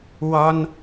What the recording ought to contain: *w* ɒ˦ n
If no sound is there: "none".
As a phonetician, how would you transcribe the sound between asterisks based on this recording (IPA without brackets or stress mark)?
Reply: w